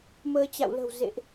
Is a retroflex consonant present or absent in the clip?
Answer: absent